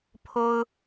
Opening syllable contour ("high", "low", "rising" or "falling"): high